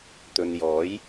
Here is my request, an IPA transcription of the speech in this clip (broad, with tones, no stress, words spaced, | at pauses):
t̪ɵ˨njɔː˨˥j